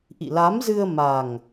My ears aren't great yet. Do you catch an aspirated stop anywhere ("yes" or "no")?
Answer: no